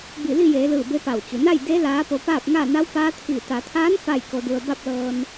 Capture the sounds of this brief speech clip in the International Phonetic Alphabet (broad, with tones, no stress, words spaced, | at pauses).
bi˧˩li˥˨jeː˩˧lɯː˧˩ be˧˥pa˧˩w t͡ɕu˩na˥˨j de˧˥ laː˧˥po˧ paː˥˨p̚ŋa˥˨ na˧˥wpaː˧˥t̪ʰiː˧˩ t̪a˩˧t̪ʰaː˧˥n fa˥˨jko˧du˧ə̯ ba˥˨p̚lɤː˧n